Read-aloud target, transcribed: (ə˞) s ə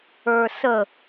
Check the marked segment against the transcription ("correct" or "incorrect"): correct